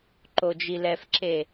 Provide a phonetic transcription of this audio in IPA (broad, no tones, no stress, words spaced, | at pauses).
ǃod͡ʒilɛfǁe